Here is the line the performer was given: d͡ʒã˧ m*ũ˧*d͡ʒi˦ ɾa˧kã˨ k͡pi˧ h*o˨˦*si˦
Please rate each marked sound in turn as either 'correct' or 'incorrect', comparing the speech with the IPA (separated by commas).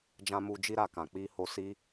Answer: incorrect, incorrect